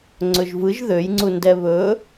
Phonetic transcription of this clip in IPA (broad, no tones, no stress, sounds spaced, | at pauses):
ŋ͡ǀ ɵ ʒ v ɯ ʒ ð ø j ŋ͡ǀ u n d ɛ β ɵ